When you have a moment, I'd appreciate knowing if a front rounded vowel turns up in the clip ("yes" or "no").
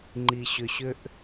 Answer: yes